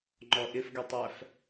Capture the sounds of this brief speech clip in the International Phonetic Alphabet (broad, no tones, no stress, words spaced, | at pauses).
ŋ͡ǃɔʔɪfɡɛtˤæf